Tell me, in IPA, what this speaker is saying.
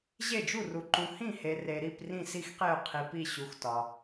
ʑ e˧˩ d͡ʒ u˧˩ r u˩ ǃ ũ˩ h ĩ˧˩ h e˩ r e˩ ɾ i˧˩ p r ĩ˧˩ s i˧˩ x q e˧˩ ʊ̯ qʰ i˩ p i˧˩ ɕ u˩ x t ɒ˩

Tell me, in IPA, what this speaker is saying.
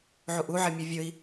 ʕ u ʔ u ʕ e mʲ e vʲ ɵ i̯

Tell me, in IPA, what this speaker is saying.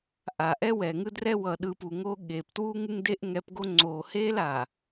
ʔ a˨ ʔ ɛ˦ w ɛː˨ ŋ ɯ˦ d r ɛ˦ w ʌ˨ ɗ ɯː˨ p u˨ ŋ o˦ ɠ eː˨ p t w uː˦ ŋ ɯ˦ ŋ d e˦ ʔ ŋ ɛ˨˦ p ɡ o˦ ŋ͡ǀ oː˨ h eː˦ l a˨

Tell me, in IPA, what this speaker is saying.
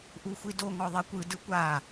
ʔ u xʷ i d o ŋ ɔ ðˤ e kʷ ɯ d ɯ kʷ a

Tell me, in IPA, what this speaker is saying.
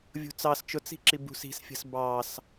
vʲ ṳ t͡s ɑ s t͡ʃ ʊ t͡s i̤ ǁ i b ṳ s i̤ s fʲ ə̤ s b ɑ s

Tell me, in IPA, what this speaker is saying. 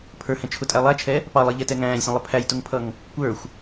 pʰ ə˞ h ɛ̃ t͡ʃʰ ʊ tʼ æ lˠ æ t͡ʃʰ ɛ | p ɑ lˠ i ʎ ɛ t ɛ ŋ æ̃ː lʲ sʲ ɛ̃ lˠ ə pʰ æ j t ʊ ŋ pʰ ʌ ŋ | kʷ ə˞ xʷ

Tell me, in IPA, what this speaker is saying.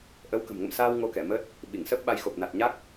ʔ ə˨˦ w k ə̤˨˩ m ŋ ə̰˧˨ m s aː˧ w ŋ o˧ k ɛ˧˩ m əː˦˥ t̚ | ɓ i˧˩ ŋ s əː˦˥ p̚ ɓ a˧ j x o˨˩ p̚ n a˨˩ t̚ ɲ a˦˥ k̚

